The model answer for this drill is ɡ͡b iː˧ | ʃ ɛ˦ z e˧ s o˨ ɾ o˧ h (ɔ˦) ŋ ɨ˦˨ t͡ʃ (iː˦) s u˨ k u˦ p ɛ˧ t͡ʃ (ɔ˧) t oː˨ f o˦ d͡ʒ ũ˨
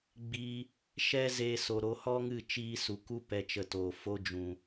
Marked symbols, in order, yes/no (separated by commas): yes, yes, no